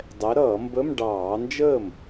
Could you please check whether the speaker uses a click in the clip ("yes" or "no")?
no